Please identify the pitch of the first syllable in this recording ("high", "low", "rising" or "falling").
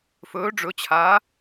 rising